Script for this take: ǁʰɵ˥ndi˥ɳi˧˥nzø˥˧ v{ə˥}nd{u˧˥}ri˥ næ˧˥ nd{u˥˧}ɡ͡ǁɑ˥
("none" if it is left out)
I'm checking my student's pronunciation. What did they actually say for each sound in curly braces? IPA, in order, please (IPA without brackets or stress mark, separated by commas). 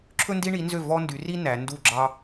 ɔ˥, y˧˥, u˥˧